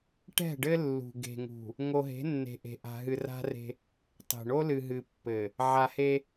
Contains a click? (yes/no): no